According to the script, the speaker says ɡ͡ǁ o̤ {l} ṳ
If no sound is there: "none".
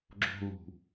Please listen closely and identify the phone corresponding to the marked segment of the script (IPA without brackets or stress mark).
l